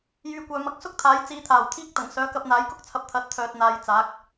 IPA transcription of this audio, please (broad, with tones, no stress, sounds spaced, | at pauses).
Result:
j yː˨˧ kʷ œː˨ m ɐ˧ k̚ s ʊ˥ k̚ t̪ʰ aː˨˥ j t͡s iː˨˧ t̪ʰ aː˨˩ w t̪ʰ iː˥ k̚ t̪ ɐ˨˩ ŋ s œː˨˥ k ɐ˧ p̚ n̪ aː˨˥ j k ʊ˥ k̚ t͡sʰ ɐ˧ p̚ t̪ʰ ɐ˨˥ t̚ t̪ʰ œː˨ t̚ n̪ aː˨˧ j t͡s aː˨˥ k̚